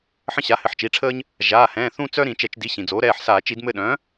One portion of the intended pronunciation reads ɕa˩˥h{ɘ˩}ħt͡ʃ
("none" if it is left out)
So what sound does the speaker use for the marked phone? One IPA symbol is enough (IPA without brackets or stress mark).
ɘ˩˥